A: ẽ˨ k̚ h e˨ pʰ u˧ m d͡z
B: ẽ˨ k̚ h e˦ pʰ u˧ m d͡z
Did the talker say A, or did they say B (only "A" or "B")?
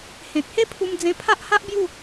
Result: B